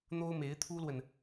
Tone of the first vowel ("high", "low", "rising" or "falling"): high